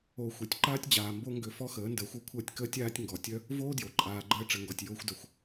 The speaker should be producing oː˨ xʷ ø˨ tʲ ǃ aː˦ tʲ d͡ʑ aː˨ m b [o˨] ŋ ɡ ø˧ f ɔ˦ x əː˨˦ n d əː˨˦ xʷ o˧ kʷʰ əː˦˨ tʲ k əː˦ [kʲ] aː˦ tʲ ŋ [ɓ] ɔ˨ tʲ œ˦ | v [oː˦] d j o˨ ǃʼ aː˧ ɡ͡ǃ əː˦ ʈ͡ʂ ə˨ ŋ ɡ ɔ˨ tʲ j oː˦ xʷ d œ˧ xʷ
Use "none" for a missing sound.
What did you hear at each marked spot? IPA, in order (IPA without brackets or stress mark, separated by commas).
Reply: o˦, tʲ, ɡ, oː˦